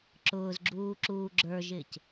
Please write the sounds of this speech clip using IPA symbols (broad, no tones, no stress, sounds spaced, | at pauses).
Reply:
ǁ ʊː z ɡ͡ǁ uː ǁ uː ɡ͡ǁ ə˞ ʒ ɪː c